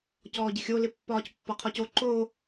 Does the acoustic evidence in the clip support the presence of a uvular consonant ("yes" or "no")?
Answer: yes